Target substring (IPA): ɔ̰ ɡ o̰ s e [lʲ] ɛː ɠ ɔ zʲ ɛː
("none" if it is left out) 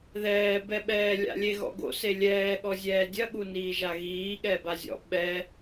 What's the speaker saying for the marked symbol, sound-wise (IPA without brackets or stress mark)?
lʲ